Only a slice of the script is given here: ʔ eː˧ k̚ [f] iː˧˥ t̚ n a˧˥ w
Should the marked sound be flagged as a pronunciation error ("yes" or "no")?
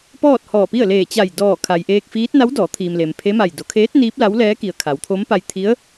no